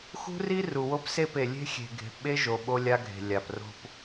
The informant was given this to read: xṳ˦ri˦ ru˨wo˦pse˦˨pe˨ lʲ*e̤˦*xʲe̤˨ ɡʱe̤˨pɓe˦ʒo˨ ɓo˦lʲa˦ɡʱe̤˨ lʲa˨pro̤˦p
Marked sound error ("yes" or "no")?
no